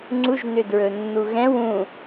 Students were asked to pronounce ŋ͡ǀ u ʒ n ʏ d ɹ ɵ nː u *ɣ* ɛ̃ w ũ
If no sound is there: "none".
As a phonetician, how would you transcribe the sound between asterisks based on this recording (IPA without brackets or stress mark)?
ɣ